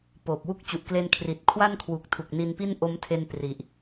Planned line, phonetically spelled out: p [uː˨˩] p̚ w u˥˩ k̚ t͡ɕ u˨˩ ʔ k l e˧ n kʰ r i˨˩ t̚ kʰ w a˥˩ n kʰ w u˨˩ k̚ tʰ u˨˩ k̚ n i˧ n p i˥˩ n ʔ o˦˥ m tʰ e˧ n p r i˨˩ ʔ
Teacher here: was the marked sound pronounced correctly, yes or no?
no